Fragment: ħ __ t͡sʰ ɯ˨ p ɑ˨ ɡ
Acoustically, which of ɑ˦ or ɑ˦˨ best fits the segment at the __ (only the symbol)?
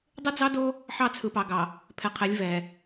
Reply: ɑ˦˨